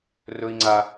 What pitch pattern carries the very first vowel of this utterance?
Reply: high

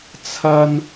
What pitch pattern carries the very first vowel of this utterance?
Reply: high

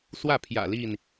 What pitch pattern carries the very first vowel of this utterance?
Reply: falling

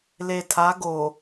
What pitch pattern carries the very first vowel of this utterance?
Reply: low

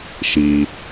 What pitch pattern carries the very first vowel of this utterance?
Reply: low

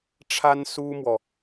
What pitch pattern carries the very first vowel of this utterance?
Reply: high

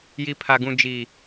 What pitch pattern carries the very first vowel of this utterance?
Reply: low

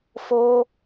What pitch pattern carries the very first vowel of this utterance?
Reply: high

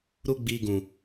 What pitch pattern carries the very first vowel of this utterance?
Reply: high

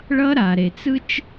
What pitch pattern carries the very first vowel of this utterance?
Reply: high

